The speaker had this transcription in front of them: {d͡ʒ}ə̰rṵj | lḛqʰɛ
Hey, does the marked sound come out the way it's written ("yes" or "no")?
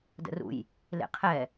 no